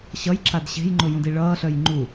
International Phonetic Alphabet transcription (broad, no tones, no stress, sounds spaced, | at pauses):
ɕ ʌ j ǁ a d ɕ e̤ j ŋ͡ǃ ʊ j ũ d i ɭ ʌː ɬ œ j ŋ͡ǃ u